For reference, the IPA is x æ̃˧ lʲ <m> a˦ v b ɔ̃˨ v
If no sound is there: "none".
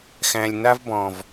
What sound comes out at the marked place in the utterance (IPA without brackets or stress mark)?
n